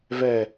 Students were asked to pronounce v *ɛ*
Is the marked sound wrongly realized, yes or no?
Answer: no